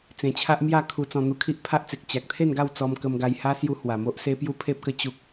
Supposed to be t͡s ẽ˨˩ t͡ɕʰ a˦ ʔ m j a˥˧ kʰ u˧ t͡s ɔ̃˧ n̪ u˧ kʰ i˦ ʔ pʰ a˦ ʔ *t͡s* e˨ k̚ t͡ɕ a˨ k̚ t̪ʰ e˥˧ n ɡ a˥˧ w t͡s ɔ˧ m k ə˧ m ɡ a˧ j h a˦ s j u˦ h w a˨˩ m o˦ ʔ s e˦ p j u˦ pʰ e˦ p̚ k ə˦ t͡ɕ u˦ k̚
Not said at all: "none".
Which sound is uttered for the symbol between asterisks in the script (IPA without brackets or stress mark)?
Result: t͡s